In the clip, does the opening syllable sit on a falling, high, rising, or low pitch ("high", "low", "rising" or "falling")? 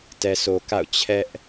low